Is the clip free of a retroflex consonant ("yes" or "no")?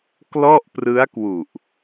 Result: yes